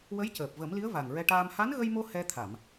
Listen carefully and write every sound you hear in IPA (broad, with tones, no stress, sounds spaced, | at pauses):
w ə˧˥ j c əː˨˩ p̚ v ə˨˩˦ m l i˧˥ ə̯ v a˨˩ ŋ ɹ ɛ˧ ʈ aː˧ m h a˧˥ n ɣ ə˧ j m o˧ h ɛ˧ t̪ʰ a˨˩˨ m